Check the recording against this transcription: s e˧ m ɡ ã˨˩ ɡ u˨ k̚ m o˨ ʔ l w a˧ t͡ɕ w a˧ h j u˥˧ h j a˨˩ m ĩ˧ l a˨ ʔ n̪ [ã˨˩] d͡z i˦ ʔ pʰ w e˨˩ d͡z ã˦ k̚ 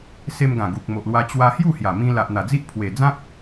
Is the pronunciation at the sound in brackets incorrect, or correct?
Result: incorrect